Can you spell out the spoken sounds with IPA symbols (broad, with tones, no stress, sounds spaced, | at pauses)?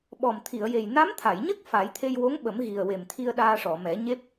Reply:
ɓ ɔ˨˩ m t̪ʰ i˨˩˨ ə̯ j e˨˩ j n a˧˥ m t̪ʰ a˨˩˨ j ɲ ə˦˥ k̚ f a˨˩˦ j t̪ʰ e˧ j w o˧˥ ŋ ɓ ə˨˩˦ m ɣ i˨˩ ə̯ w e˨˩ m t̪ʰ i˧ ə̯ ɗ aː˧ ʂ ɔ˨˩˨ m ɛ˨˩˦ ɲ e˦˥ p̚